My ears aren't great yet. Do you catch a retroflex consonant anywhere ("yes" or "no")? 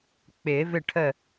yes